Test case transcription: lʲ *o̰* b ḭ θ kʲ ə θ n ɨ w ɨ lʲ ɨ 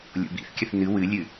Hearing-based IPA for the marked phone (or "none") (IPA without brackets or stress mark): o̰